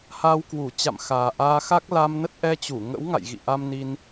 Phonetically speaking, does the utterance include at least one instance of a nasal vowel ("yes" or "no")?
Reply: no